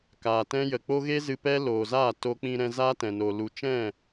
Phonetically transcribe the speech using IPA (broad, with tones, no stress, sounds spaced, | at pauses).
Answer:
k aː˨ t ɛ̃˦ j ə˨ k͡p o˦ ɣ e˦ z ɨ˧ p ɛ˦ l oː˨ z aː˦˨ t o˧ k͡p ĩ˧ ɾ ɛ̃˧ z aː˦ t ɛ̃˨ n o˨ l u˨ t͡ʃ ɛ̃˦˨